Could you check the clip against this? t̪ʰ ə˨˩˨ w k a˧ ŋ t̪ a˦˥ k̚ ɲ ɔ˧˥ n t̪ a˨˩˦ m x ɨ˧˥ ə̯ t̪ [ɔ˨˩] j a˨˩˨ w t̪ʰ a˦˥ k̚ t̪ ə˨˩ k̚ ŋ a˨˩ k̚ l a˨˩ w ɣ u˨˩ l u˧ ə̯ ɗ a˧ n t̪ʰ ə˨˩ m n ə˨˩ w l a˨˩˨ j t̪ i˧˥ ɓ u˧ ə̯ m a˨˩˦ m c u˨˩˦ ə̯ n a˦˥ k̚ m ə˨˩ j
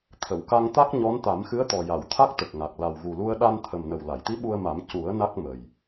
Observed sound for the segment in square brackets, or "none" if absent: ɔ˨˩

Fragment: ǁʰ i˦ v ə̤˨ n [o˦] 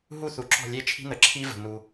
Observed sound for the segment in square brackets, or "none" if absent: u˦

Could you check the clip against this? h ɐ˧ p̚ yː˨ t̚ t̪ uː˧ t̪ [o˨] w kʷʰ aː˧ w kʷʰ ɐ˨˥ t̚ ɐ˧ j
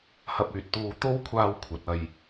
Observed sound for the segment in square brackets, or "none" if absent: o˥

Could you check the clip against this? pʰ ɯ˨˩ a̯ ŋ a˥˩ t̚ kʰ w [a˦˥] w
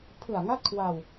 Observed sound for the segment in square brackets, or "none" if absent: a˧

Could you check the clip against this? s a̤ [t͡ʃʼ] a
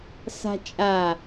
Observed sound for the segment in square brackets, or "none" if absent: t͡ʃʼ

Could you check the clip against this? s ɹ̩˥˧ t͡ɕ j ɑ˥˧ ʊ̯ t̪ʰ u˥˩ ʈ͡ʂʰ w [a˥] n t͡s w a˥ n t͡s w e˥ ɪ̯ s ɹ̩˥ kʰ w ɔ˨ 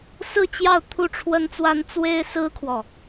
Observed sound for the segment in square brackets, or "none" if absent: ə˥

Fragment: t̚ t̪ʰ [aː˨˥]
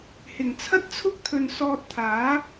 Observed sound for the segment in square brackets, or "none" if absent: aː˨˥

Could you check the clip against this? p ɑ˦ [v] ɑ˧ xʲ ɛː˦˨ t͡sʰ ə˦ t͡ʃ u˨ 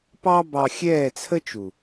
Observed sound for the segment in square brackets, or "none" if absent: b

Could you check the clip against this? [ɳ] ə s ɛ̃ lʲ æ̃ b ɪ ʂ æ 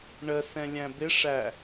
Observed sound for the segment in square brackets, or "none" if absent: ɳ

